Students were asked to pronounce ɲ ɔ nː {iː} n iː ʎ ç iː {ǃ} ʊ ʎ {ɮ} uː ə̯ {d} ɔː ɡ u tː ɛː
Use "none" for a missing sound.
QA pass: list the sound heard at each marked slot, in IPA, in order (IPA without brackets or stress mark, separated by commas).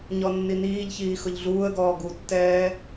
i, x, ɮ, ɡ